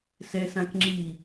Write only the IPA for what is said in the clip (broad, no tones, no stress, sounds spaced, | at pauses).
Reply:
s ɛ s ã k ŋ͡ǁ i